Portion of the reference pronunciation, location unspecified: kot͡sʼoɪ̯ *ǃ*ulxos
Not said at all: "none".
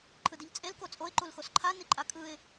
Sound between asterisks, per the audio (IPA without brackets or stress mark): ǃ